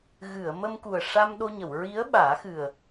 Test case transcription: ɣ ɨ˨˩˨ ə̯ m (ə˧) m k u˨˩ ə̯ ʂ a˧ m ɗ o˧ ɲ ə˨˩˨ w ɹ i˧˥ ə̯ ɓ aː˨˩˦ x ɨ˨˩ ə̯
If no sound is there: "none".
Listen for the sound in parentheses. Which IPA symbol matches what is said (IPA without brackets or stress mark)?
ə˧